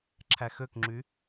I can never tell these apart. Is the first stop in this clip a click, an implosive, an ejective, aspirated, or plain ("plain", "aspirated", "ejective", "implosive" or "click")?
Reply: click